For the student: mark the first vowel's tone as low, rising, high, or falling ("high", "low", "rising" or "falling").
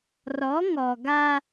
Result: rising